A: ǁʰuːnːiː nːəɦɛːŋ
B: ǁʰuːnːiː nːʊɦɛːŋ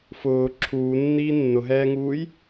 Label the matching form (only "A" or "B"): B